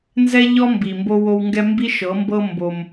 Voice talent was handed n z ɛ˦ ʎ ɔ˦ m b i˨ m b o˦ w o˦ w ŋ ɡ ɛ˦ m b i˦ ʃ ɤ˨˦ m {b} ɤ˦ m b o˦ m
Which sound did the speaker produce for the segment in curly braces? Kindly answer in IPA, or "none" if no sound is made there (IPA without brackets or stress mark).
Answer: b